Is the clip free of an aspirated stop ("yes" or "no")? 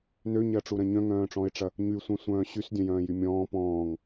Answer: yes